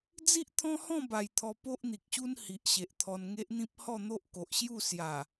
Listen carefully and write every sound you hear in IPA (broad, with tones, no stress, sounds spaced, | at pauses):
d͡z i˦ ʔ t̪ʰ ɔ̃˦ h ɔ̃˥˧ b a˨˩ j t̪ʰ ɔ˧ p o˦ ʔ n̪ i˨ k̚ ɕ u˦ n h i˨ ʔ ɕ e˨ ʔ t̪ʰ ɔ˧ n ŋ e˦ ʔ n̪ ĩ˦ p̚ h ɔ˥˧ n̪ o˦ ʔ k o˨ ʔ ɕ j u˥˧ s j a˨˩